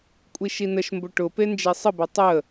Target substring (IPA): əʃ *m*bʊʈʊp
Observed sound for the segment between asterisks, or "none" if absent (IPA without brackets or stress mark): m